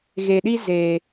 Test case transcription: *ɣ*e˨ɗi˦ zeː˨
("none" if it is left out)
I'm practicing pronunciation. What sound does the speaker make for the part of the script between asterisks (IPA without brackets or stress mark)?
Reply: ɣ